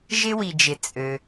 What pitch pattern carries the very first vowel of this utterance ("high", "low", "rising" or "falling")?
high